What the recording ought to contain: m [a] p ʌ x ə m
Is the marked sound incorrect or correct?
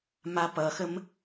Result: correct